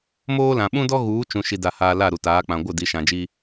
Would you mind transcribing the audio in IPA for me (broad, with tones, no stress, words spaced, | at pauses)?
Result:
moː˦lã˨ ɓũ˦dɔ˦ ɣuː˨˦t͡ʃũ˨ ʃi˨da˨haː˨ la˦˨ɾu˨taː˨˦ k͡pã˨ɡʷɪ˦˨ di˨˦ʃã˨d͡ʒi˦